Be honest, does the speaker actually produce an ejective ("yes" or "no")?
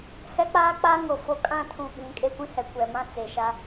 yes